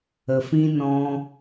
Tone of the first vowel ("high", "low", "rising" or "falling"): low